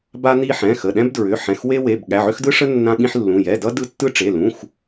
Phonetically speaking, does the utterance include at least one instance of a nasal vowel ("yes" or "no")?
yes